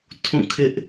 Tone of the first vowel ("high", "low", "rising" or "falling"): falling